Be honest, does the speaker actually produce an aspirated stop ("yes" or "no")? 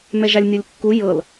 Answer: no